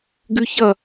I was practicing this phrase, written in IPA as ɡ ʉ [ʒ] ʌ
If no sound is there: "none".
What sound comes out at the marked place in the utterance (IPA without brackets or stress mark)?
ç